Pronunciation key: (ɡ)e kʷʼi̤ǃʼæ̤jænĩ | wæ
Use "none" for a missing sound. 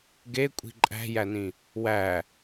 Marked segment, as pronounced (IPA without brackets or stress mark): ɡ